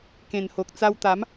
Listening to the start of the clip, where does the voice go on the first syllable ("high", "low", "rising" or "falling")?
low